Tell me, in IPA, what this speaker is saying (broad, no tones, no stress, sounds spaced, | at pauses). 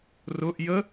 r ʊ ʔ j ə